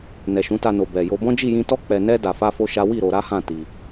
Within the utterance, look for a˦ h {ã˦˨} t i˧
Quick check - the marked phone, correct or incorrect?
correct